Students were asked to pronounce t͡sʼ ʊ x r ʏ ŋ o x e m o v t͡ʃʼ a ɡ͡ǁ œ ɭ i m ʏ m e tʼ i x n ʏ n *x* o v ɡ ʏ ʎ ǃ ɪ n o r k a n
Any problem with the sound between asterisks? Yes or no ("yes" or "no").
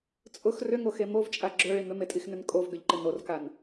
yes